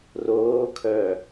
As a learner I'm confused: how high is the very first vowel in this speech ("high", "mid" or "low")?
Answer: mid